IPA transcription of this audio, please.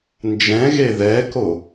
n d͡ʒ ɛ̃ ɣ e ð ɛ k o

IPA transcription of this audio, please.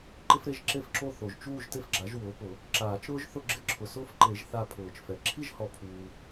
ǃ ɪ˦ f ɾ e˦˨ ʒ ǁ e˦ f ǁ o˦˨ θ o˨ ʒ t͡ʃ uː˦˨ ʒ t e˦ f ɡ͡ǁ a˩˥ ʒ w ʊː˩˥ p ʊ˨˩˦ | ǁ aː˨˩˦ t͡ʃ ɾ ʊː˦ ʒ θ ʊ˦˨ ɡ͡ǁ ɪ˦ ǁʰ ʊ˨ s ʊː˦ f ǃ e˨˩˦ ʒ θ a˦˨ pʰ ʊː˨˩˦ t͡ʃ f ɛ˩˥ ǁʰ i˦ ʒ h ɔ˨˩˦ pʰ uː˨

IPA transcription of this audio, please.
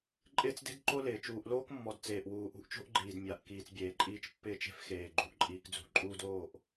ǃʼ ɪː˦ t͡s d e̤˦ d ǃ o˦ l ɪː˨ t͡ʃ uː˨ ʔ l oː˦ k mː ɔ˨ d t͡s eː˨ ʔ w uː˨ ʔ ṳ˦ ʔ t͡ʃ o̤˦ ʔ ɡ͡ǃ iː˨ d mʲ a˨ ʔ k iː˨ t͡s bʲ eː˨ ǃʼ iː˦ t͡ʃ pː ɪː˦˨ t͡ʃ e̤˦ f x eː˨ ɡ͡ǃ ṳ˦ ʔ ǃʼ iː˦ k d͡z ṳ˦˨ ǃʼ uː˦ d oː˦˨ ʔ

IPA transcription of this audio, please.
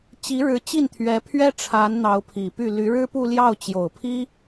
t͡ɕ i˧˥ ɻ ɻ̩˧˥ t͡ɕ i˥˩ n t̪ʰ ɥ ɛ˧˥ pʰ ɥ ɛ˥ ʈ͡ʂʰ a˧˥ n n̪ ɑ˧˥ ʊ̯ pʰ i˨˩ p y˥˩ l y˧˥ ɻ ɻ̩˥ p u˥˧ l j ɑ˥˩ ʊ̯ t͡ɕ j o˨˩ ʊ̯ pʰ i˥

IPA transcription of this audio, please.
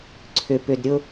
ǀʰ ʏ˧ p ʏ˧ d ɾʲ ʊ˦

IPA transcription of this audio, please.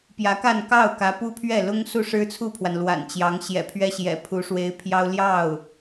p j ä˧˥ k a˥˧ n k ɑ˥˩ ʊ̯ k ä˧˥ p u˥ pʰ ɥ ɛ˥˩ l ʊ˥ ŋ s u˥˩ ʂ ɻ̩˥ t͡sʰ u˥˩ pʰ w a˩ n l w a̰˨˩ n t͡ɕ j ɑ˧˥ ŋ ɕ j ɛ̰˨˩ pʰ ɥ ɛ˥ ɕ j ɛ̰˨˩ pʰ u˧˥ ʂ w e˧˥ ɪ̯ pʰ j ɑ˥ ʊ̯ l j ɑ˥˩ ʊ̯

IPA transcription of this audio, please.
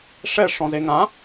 ʂ ɛ ʂ ɔ̃ z e ŋ ã

